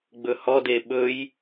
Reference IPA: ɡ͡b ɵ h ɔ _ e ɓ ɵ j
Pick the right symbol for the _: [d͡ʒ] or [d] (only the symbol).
d